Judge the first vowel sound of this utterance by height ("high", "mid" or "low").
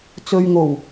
mid